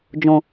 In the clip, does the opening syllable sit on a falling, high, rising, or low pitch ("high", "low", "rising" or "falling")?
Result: low